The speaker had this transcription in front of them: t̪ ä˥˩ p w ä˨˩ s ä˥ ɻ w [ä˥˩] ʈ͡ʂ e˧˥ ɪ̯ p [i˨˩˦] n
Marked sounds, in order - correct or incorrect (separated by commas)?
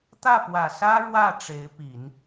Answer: correct, correct